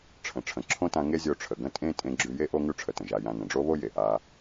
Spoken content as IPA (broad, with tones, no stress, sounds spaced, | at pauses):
ʈ͡ʂʰ ə̃˩ ʈ͡ʂʰ ə̃˩ ǁʰ õ˥ t ã˧ ŋ e˥ zʲ o˧ ʈ͡ʂʰ ə˩ ɡ ə̃˥ tʼ ẽ˥ tʼ ẽ˧ ɡ͡ǁ ʉ˧ j e˥ ʔ o˥ ŋ ʉ˥ ʈ͡ʂʰ ə˩ t ə̃˩ ʒ a˧ j ã˧ n ə̃˩ ɖ͡ʐ o˥ β o˥ j e˩ ʔ a˧